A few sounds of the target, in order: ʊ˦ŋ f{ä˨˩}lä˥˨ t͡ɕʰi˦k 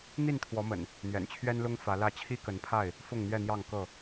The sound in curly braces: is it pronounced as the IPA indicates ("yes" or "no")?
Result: no